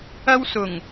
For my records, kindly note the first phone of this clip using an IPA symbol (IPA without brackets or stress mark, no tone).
ɐ